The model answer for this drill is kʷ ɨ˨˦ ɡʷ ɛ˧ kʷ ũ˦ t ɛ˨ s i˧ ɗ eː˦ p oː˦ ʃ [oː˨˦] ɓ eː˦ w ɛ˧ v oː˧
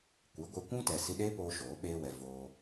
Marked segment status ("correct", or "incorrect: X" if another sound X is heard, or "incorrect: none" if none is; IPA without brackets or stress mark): correct